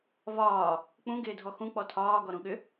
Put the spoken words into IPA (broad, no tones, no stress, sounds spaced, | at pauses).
v ɒː | k͡p ũ ɡ ɪː dʱ ɔ x ũ k͡p ɔ tʰ ɒː ɡ ɔ ɾ ũ ɠ ʏ